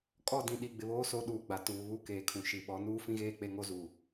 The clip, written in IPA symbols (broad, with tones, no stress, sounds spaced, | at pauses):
kʼ ɔ˦˨ d ĩ˨ ɗ i˨ ɡ͡b ɪ˨ β oː˦ s o˨˦ ɗ uː˨ ɡ͡b a˨ t uː˨ β u˦ k eː˨ kʰ ũ˨ ʃ i˨ ɓ ɔ˨˦ n uː˦ f ĩ˦ ɣ eː˦˨ k͡p e˦ ŋ o˦ z uː˨